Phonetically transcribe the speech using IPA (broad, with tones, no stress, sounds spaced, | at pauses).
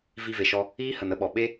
v i˧ v e˨ ʃ ɔ˧ | iː˦ h ə˨ n ə˦ ɓ ɔ˨ ɓ e˦